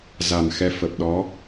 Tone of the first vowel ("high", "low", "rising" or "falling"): low